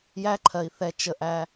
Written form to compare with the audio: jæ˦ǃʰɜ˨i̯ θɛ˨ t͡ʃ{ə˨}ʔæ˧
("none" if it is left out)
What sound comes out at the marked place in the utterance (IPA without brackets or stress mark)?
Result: ə˨